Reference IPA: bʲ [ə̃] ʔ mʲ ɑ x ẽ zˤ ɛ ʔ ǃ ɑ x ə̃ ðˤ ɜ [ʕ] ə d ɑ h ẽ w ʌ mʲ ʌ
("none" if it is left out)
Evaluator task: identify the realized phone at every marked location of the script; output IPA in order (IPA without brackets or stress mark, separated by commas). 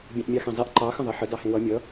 ɑ̃, ħ